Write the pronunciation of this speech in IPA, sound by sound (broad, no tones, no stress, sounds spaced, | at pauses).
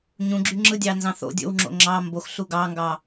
ɲ ũ ɡ͡ǁ y ŋ͡ǁ ɯ dʲ ɑ n z ɑ̃ θ o̰ dʲ o̰ w ŋ͡ǁ o̰ ŋ͡ǁ ɑ m b o x ɬ u ɡ ɑ ŋ ɡ ɑ